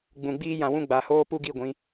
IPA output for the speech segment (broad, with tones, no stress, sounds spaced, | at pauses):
ɡ͡b ũ˨ ɡ͡b iː˦ j ã˧ w ũ˦ ɡ͡b a˨ h oː˦ p u˦ ɡ i˦˨ ɡʷ ĩ˨˦